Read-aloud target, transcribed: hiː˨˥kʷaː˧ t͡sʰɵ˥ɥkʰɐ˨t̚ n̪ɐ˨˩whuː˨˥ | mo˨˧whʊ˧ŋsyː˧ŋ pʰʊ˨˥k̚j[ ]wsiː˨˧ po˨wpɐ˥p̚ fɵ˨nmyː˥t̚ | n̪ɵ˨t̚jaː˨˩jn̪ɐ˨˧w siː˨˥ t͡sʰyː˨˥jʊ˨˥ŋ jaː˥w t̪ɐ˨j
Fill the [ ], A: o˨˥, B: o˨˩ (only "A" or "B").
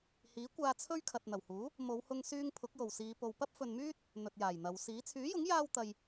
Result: B